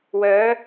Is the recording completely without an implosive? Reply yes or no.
yes